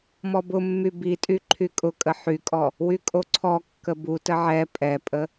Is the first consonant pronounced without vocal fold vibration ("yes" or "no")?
no